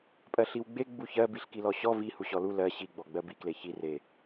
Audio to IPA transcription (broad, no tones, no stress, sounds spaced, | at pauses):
pʼ ɜ ɬ i w ɡ͡b e ɡ͡b u ç ɜ b i ɬ k i l ɔ ɕ ɔ v i h u ɕ ɔ l u l ɜ ɕ i ɡ͡b ɔ ɡ͡b ɜ b i k l e ç i r e